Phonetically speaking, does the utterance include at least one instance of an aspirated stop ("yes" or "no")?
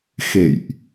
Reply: no